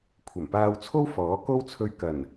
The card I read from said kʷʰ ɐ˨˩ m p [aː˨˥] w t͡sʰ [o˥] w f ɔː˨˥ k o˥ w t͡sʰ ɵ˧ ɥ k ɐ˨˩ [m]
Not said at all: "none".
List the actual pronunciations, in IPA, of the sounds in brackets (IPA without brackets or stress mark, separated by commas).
aː˧, o˥, n